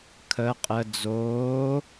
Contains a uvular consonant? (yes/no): yes